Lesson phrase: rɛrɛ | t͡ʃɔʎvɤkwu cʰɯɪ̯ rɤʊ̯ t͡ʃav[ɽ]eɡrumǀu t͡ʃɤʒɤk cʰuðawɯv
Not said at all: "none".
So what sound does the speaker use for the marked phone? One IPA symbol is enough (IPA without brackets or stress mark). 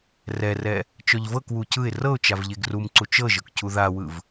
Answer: ʎ